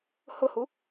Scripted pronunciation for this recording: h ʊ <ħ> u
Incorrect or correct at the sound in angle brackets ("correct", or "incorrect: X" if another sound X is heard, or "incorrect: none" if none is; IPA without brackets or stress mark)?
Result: incorrect: h